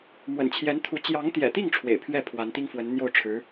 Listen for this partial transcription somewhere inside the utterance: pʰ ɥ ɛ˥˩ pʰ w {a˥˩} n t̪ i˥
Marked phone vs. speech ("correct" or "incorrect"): incorrect